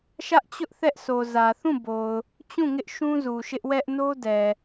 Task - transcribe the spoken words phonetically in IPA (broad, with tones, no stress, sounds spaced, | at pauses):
ʃ ä˦ ʔ t͡ɕ ʊ˦ ʔ θ ɛ˦ ʔ s o˨ z ä˨ θ ũ˦˨ b o˨ ʊ̯ | t͡ɕ ũ˦˨ ŋ ɪ˦ ʔ ʃ ũ˦ z u˨ ʃ ɪ˦ ʔ w ɛ˦ ʔ n o˦ d ɛ˨